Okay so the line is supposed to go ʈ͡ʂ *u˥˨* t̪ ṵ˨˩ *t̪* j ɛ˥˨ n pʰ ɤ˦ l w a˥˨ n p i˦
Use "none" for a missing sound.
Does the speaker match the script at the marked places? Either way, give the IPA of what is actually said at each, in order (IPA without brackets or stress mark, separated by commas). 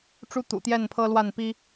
u˦, t̪